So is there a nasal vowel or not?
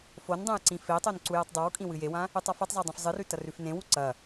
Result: yes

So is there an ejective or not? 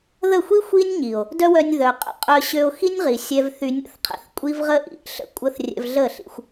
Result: yes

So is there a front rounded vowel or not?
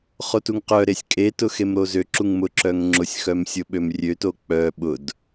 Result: yes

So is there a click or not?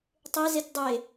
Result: no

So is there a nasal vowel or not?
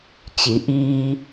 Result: no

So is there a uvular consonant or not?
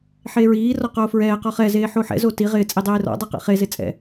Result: yes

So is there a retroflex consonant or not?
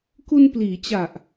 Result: no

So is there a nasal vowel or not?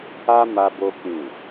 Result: yes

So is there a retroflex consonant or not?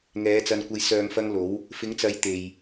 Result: no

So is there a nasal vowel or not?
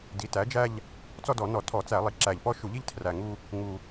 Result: no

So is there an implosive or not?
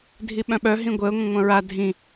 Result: yes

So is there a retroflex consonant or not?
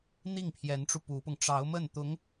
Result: yes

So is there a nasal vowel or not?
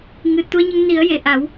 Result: no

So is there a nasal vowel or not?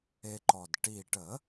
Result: no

